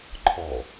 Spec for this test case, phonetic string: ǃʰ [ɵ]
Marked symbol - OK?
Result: no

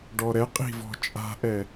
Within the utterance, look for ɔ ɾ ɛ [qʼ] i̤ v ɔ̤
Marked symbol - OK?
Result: yes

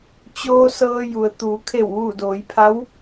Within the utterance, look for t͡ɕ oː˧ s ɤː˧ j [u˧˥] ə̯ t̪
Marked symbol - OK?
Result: no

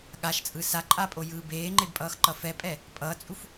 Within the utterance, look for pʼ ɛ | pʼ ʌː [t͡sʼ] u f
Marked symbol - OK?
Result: yes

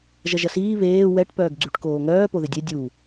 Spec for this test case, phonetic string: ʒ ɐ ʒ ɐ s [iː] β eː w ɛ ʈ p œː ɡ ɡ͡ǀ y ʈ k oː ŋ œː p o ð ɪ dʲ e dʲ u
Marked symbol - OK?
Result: yes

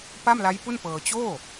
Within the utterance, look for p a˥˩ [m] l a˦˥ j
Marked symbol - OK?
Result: yes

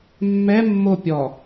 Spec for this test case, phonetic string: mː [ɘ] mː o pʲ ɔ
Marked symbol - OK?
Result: no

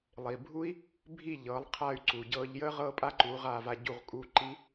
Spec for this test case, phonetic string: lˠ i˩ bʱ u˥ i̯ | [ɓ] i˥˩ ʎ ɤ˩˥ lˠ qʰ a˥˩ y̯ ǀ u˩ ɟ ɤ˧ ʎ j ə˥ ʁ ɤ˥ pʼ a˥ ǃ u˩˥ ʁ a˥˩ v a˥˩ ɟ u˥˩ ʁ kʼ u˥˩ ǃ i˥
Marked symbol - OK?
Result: no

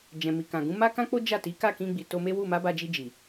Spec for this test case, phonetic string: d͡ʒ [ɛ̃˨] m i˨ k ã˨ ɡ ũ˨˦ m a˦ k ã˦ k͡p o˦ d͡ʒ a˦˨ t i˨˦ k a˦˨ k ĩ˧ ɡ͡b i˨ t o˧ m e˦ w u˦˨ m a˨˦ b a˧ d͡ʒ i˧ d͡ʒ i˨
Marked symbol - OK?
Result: yes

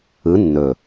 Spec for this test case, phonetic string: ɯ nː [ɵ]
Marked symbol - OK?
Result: yes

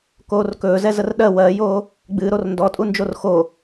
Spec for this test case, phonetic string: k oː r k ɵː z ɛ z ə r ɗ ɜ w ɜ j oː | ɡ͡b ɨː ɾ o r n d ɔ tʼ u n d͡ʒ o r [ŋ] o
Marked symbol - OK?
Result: no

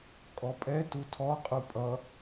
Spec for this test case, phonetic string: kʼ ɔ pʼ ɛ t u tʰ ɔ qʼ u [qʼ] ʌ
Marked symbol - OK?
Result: no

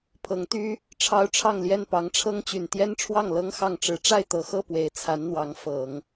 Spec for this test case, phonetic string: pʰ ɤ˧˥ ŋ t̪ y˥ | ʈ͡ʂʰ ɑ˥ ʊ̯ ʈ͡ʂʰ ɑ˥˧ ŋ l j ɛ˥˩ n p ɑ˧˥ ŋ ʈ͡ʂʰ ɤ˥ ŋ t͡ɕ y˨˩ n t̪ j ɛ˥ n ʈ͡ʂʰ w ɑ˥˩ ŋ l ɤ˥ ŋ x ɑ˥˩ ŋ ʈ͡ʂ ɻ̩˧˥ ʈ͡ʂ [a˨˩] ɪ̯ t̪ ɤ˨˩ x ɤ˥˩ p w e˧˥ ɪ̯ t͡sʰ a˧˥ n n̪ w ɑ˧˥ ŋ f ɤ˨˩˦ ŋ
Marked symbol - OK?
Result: no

